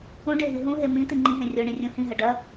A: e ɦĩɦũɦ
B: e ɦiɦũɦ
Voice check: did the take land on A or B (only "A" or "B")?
B